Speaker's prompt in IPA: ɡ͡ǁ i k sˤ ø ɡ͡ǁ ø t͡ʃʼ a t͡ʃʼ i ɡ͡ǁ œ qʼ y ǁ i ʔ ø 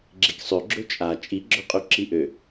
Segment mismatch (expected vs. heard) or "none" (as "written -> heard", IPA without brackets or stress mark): none